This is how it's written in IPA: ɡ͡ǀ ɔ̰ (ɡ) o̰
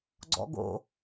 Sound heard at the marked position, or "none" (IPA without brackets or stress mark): ɡ